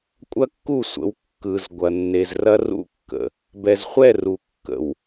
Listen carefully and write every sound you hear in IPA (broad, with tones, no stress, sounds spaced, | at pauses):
kʷʼ ɐ˦ kː u˦˨ sʷ ə̰˨˦ w kː ɯ˨ z ɡʷ ɐ˨ nː e˨ z r ɐ˦ r ṵ˦ kː ə̰˨ | b ɛ˨ z χʷ ɛ˦˨ r u˨ kː ə̰˨ w